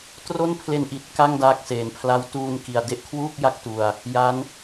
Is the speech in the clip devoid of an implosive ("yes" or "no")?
yes